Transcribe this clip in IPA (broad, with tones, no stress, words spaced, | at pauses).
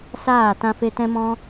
saː˦˨ tã˧fe˧tɛ̃˦mɔ̃˦